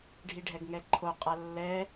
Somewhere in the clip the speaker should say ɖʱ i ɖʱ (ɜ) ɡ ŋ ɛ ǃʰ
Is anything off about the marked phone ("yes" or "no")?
yes